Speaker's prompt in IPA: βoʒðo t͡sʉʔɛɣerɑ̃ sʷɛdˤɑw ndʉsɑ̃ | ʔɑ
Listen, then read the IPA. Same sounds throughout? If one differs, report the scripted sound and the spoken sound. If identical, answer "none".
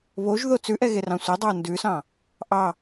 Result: none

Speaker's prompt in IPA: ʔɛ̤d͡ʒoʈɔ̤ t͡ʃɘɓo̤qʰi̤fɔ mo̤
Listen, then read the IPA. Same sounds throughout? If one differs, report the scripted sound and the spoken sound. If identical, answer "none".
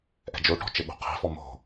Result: none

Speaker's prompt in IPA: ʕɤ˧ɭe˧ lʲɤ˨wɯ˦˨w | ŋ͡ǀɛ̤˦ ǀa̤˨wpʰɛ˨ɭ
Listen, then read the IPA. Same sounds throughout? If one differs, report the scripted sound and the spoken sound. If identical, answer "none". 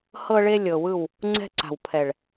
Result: ʕ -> h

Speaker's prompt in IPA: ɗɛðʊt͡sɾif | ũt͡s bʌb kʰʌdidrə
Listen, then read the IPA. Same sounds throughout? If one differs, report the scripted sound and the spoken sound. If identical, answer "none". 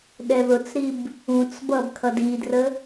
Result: f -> b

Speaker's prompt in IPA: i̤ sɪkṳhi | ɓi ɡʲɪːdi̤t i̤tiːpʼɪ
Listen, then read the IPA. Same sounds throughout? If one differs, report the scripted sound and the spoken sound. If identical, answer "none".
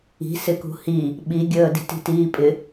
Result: ɪː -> əː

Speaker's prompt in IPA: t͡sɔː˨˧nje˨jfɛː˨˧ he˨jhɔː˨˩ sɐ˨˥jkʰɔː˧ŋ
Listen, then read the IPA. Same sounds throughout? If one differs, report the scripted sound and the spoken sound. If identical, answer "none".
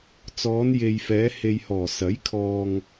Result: none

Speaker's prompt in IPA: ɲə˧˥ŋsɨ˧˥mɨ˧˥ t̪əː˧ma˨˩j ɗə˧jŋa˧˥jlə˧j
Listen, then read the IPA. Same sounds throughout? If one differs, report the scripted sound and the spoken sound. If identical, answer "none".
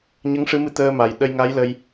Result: s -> ʂ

